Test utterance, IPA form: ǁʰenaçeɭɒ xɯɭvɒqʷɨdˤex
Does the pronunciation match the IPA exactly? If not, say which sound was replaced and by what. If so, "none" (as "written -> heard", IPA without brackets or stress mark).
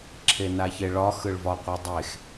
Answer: none